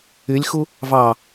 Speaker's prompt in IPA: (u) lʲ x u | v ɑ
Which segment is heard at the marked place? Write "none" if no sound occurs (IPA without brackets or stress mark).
y